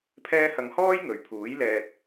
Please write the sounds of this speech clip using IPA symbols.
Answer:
pʰ ɛː˥ h ɐ˧ ŋ h ɔː˥ j ŋ ɵ˨ ɥ pʰ uː˨˥ j l ɛː˧ t̚

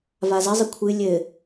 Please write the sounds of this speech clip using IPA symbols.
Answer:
v a z ɘ zˤ ɘ kʷʰ ɨ lʲ ɘ

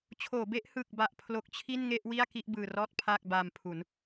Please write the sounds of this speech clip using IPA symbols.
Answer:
t͡ɕʰ oː˩˦ b e˦˥ ʔ h ɯ˨˩ k̚ b a˨˩ ʔ pʰ l o˦˥ k̚ t͡ɕʰ i˥˩ n ŋ e˥˩ ʔ w i˥˩ a̯ k i˥˩ ʔ b ɯː˧ r ɔː˥˩ t̚ pʰ aː˥˩ k̚ b aː˧ m pʰ u˩˦ n

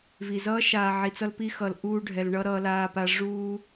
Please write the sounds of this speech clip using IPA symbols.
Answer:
v i˨ z ʌː˦ ʃ aː˨ ʕ i˨ t͡s ʌ˧ l p i˧ x ʌ˨ l ʔ uː˧ ɖʱ ɛ˨ l ɳ ʌ˦ ɾ ʌː˧ l aː˧ p a˧ ʐ uː˧

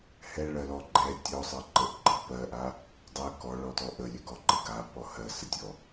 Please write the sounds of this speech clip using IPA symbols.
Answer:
h ɛ ɭ ɜ l ɔ ɡ͡ǃ ɛ tʲ ɔ sˤ ɜ ǃ ə ʔ ɡ͡ǃ ɜ p ɜ ʔ a | dˤ ə k ɔ ɭ ɔ t ɔ ʔ ə lʲ ɛ ɡ ɔ ǃ ə ɡ a p ɔ h ɜ s ə tʲ ɔ

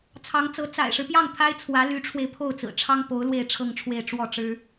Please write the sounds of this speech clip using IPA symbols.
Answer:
t͡sʰ ɑ˧˥ ŋ t͡s ɤ˧˥ t͡s a̰˨˩ ɪ̯ ʂ ɻ̩˦ p j ɑ˥˩ ŋ t̪ʰ a˥ ɪ̯ t͡sʰ w ä˧˥ l y˧˥ ʈ͡ʂʰ w e˧ ɪ̯ pʰ o˥˩ ʊ̯ t͡s ɹ̩˨˩ ʈ͡ʂʰ ɑ˥ ŋ p o˧˥ ʊ̯ l w e˥˧ ɪ̯ ʈ͡ʂʰ ɤ˥˧ ŋ ʈ͡ʂʰ w e˥˧ ɪ̯ ʈ͡ʂ w ɔ˥˩ ʈ͡ʂ ɻ̩˥

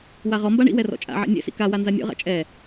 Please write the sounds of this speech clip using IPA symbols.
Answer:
w a ʁ ɔ m b a ɳ ḭ w ɛ r ɔ̰ t͡ʃʼ a̰ ʕ ɛ̰ nʲ ɛ̰ s ḭ k a w a n z a nʲ ɔ̰ ʁ a̰ t͡ʃʼ ɛ

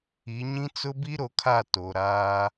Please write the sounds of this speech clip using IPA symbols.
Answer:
i˨˦ ɲ ĩ˦ t͡s ʊ˦ b i˦ ɾ o˨ kʰ a˦˨ t o˨ ɾ aː˦

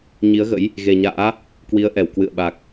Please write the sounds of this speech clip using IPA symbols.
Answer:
ɲ i˨˦ ə̯ ɣ ə̰˧˥ j | ɣ e˨˩ ɲ a̰ː˧˥ | k w i˨˦ ə̯ ʔ ɛ˧˩ w k w ɨ̰˧˨ ə̯ ɓ a˨˩ k̚

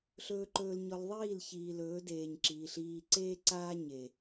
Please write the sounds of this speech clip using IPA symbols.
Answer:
ɬ ɵː˨ ǃ ɵː˨ l ɲ ɔ˨ l ðˤ iː˦˨ l ç iː˨ l ɵː˨˦ d eː˨ ɲ ǁ iː˨ ɬ iː˨ ǀ eː˦ ǀ aː˦ ɲ e˨

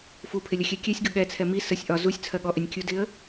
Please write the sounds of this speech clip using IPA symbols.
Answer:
f u pʰ ɪ lʲ ʌ xʲ ɛ kʲ ɛ sʲ ɡ ʊ ɠ ɛ t͡sʰ ɛ m i s ə sʲ ʔ ɒ z u sʲ t͡sʰ ɜ ɠ ɔ ʔ ɪ nʲ kʲ u d ɪ ə̯

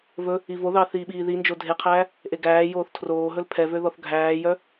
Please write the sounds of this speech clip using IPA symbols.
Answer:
v ɵ | i v o ð ɑ θ iː ɓ iː ð i n d͡ʒ o dʱ e qʰ æː | ʔ e ɡ æː j oː θ tʰ r oː ɦ ɵ l pʰ ɛ v ø ð ɔ θ ɡʱ æː j œ

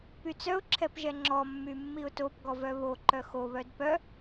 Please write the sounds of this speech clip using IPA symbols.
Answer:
p y t͡s œ ʊ̯ ǁʰ ɛ p ʒ ɛ ŋ͡ǁ ɔ mː y mː i ʊ̯ t o p ɡ ɔ v œ β o ǃ œ x o β œ d p œ

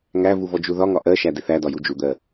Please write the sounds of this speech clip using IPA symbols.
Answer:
ŋ æ v u v ɔ d͡ʒ u ð ɒ ŋ ɒ ʔ ɜ ʃ æ d ɪ θ æ d ɒ j u d͡ʒ u d̪ ɜ

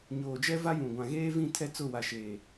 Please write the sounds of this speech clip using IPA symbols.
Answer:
ɲ oː˨ d͡ʒ ɛ˦ v a˦ j ũ˨ ɡʷ ã˨ ɣ eː˦ v ĩ˦˨ tʰ ɛ˦ t͡s ʊ˦˨ w a˨ ʃ eː˨

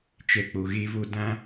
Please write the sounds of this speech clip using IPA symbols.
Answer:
t͡ʃ ɛ˨ k͡p o˨ ɣ e˦ v o˦ d ã˦

